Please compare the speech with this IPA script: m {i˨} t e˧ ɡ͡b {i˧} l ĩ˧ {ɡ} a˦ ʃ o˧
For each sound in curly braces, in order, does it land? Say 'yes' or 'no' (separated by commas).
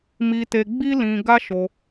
no, no, yes